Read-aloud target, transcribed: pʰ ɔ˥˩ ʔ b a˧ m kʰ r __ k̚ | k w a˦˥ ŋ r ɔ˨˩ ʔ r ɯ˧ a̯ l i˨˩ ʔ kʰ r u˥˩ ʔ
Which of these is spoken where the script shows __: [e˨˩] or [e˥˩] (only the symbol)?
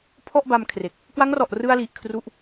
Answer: e˨˩